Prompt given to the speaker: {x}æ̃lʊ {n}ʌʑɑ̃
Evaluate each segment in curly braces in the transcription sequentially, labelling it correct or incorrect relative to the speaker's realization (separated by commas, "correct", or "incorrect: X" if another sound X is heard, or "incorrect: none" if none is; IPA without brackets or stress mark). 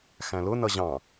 correct, correct